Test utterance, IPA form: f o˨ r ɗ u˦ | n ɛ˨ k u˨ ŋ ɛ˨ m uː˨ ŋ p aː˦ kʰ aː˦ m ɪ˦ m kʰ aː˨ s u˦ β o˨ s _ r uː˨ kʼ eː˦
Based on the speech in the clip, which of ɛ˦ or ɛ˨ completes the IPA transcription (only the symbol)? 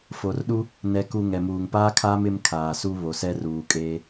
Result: ɛ˦